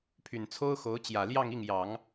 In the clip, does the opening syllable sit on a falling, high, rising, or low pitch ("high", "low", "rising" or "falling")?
low